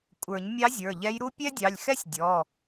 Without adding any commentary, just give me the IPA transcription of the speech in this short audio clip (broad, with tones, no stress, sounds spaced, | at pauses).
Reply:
kʷʼ ə˞˨˩˦ ɲ mʲ ɑ˧˥ zʲ ə˞˩˧˩ ʎ ɛ˧˥ j ɾ u˥ pʲ ɛ˥ dʲ ɑ˩˧˩ lʲ x ɛ˥ sʲ dʲ ɔ˩˧˩